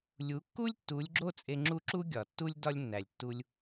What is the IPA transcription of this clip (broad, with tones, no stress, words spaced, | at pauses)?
lʲu˩˥kːu˥lʲ tːu˩˥lʲɡ͡ǁo˥ t͡sʼe˧ŋ͡ǁu˥˩ǁu˥ ɡʲɒ˩tːu˥lʲ dɒ˥lʲnːæ˩lʲtːu˧lʲ